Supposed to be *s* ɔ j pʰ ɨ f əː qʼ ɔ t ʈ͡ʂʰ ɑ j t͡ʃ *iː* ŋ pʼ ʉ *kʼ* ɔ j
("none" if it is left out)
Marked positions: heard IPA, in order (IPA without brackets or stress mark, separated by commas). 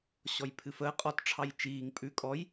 ɕ, iː, kʼ